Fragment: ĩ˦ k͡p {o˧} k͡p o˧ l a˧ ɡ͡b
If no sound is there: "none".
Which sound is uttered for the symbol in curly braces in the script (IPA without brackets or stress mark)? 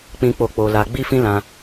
o˦˨